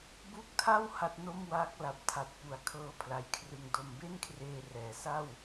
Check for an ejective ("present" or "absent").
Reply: absent